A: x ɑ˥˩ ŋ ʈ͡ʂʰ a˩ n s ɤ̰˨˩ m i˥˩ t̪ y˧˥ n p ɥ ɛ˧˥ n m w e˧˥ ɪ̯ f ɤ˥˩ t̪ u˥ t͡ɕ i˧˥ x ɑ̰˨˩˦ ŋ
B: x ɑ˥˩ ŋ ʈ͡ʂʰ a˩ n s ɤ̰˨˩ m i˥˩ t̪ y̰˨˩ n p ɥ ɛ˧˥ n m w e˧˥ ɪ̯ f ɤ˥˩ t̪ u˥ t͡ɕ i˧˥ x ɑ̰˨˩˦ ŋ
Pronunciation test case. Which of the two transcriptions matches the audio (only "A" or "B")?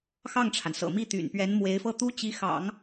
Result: B